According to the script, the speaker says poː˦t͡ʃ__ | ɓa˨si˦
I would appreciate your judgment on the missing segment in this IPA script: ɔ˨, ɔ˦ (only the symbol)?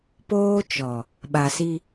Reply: ɔ˨